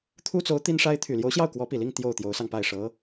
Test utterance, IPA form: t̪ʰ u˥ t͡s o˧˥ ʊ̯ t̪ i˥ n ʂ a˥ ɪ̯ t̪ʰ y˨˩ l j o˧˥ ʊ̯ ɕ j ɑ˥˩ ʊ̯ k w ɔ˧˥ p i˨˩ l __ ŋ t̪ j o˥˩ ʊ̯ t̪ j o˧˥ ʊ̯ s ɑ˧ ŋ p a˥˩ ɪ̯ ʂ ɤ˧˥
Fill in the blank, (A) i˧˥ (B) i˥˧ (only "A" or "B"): B